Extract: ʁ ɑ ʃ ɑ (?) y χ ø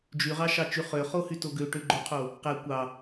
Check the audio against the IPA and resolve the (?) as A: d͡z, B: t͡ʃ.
B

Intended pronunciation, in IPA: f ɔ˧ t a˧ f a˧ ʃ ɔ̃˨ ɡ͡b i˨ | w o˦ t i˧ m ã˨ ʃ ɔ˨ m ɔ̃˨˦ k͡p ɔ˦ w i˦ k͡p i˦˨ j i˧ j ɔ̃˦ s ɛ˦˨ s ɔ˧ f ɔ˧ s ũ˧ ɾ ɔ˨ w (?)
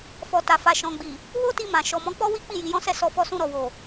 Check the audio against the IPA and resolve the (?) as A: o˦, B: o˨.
B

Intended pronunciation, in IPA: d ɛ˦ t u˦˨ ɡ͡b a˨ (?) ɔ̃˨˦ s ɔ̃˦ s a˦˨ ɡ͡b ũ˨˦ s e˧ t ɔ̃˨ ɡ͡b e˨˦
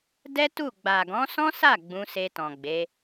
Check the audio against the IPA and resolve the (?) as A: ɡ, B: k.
A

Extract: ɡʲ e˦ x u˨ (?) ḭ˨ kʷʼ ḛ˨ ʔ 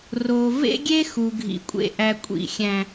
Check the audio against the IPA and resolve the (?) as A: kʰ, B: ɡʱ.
B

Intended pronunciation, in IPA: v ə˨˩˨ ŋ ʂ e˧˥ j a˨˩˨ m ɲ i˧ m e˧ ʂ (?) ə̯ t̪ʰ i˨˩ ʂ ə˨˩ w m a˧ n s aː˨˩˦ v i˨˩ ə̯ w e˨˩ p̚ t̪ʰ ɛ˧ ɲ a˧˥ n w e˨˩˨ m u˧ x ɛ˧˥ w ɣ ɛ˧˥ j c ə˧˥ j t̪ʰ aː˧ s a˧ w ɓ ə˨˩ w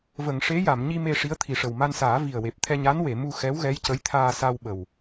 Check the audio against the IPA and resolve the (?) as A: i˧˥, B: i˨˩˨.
A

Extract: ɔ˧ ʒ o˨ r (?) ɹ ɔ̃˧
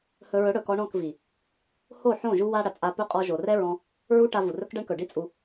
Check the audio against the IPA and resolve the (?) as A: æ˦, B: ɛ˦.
B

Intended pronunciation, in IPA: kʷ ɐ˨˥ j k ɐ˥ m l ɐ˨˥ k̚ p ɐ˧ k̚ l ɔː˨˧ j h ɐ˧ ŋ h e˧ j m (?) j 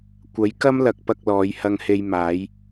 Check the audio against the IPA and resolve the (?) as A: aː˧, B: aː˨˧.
B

